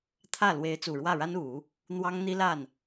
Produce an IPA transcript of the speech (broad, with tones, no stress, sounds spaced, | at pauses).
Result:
t̪ʰ ä˥˩ l w e˧˥ ɪ̯ t͡s u˨˩ ɻ w ä˥˩ ɻ a˥ n u˨˩˦ | n̪ w ɑ˥ ŋ n̪ i˥ l a˥˩ n